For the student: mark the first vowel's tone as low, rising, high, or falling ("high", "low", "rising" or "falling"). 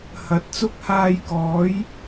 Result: rising